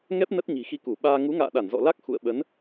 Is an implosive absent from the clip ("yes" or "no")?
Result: no